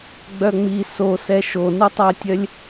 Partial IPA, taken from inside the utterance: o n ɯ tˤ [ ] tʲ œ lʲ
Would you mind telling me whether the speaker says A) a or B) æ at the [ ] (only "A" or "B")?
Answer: B